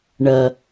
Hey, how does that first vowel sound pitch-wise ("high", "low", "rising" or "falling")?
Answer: low